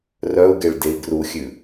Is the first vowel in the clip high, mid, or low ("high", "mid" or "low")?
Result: mid